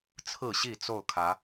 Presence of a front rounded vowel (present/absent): absent